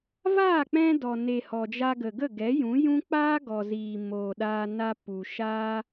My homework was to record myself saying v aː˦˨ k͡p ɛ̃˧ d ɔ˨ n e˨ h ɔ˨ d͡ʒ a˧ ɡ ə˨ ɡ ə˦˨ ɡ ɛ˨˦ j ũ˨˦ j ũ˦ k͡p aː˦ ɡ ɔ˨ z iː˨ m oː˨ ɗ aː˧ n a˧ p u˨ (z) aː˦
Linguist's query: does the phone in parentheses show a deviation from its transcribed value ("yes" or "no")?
yes